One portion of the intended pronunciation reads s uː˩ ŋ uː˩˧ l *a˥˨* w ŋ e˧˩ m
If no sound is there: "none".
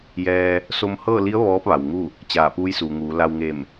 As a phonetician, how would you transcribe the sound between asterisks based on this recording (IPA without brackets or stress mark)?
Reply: a˧